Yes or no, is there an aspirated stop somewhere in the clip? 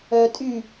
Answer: no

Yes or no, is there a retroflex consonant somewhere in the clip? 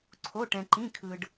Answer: yes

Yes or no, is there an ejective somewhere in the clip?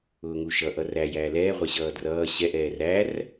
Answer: no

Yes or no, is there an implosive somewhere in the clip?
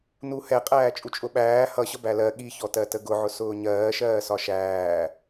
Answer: yes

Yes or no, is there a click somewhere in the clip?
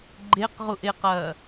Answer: yes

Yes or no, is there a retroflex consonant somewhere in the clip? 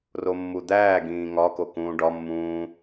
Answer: yes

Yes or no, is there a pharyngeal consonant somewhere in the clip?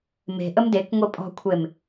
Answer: no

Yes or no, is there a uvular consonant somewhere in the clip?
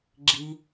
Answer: no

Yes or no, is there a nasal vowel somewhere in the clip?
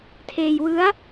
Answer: no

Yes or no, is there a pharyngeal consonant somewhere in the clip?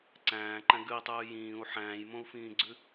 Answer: yes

